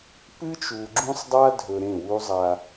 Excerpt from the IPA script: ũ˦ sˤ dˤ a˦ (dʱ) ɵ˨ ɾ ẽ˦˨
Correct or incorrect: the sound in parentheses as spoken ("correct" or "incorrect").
correct